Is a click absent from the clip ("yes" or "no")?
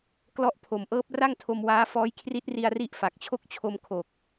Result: yes